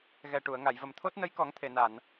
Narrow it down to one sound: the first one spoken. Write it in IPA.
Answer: ɣ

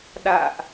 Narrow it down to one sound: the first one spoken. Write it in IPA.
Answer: ɗ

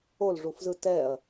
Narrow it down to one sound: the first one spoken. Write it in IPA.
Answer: o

